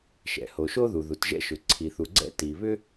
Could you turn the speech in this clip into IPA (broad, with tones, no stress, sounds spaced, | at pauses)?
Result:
ʃ ɛ̰˩ h o˩ ʃ o˥ ð u˩ ð u˩ t ʒ ɛ̰˥ ʃ ʏ˩ ǀʰ i˩ θ u˩ ɡ͡ǀ ɛ̰˥ t i˩ β ʏ˥